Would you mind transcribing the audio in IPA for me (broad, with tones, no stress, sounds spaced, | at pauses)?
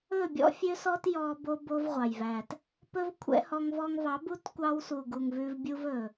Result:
ɵ˦˨ bʲ ɔ̰˦ fʲ ø˦ s ɔ˦ t j ɔ˧ b o˦ b o˦ v ʁʷ ɑ˨ j v æ˨ t | p ɵ˦ v kʷʰ ɛ̰˦ h ɔ˧ ŋ v ɔ˧ ŋ v ɑ˨˦ b u˦ t kʷ ɑ˧ w s u˨ ɡ u˨ ŋ v ʉ˧ v bʲ u˦ v ɵ˨